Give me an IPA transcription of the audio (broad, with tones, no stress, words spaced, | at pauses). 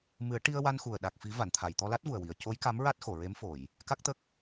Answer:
mɨ˨˩˦ə̯ʈi˧ə̯wa˧nxu˨˩ə̯ ɗa˨˩k̚fi˨˩˦ va˨˩˨nt̪ʰa˨˩˨jt̪ɔ˧ la˦˥t̚vu˨˩ə̯wi˨˩˨ə̯ co˧˥j ka˧˥mɹa˦˥t̚xo˨˩˨ ɹe˧˥mfo˨˩˨j | ka˦˥k̚t̪ə˦˥k̚